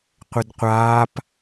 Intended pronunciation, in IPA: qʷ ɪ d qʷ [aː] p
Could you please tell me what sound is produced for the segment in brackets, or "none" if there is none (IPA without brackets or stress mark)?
aː